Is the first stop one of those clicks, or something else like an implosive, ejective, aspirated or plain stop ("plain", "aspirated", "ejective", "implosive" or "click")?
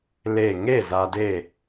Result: plain